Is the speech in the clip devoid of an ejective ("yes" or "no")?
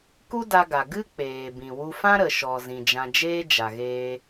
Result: yes